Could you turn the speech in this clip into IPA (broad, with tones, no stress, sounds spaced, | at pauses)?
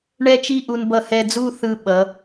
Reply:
ɳ ɛ˥ t͡ʃ i˥˧ ʔ u˧ n b ʌ˧ h ɛ˧ d͡z u˥˧ θ ɯ˧˩ ɓ ʌ˩˧